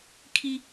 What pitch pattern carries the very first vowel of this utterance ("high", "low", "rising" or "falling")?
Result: high